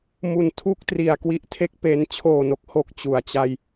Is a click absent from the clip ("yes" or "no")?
yes